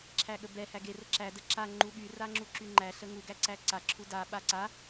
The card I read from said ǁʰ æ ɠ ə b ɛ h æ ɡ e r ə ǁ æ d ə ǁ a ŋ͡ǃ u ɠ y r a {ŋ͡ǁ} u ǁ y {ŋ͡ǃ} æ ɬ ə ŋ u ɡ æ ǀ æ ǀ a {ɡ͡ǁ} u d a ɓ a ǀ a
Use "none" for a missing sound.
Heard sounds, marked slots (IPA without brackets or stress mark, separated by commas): ŋ͡ǁ, ŋ͡ǃ, ǁʰ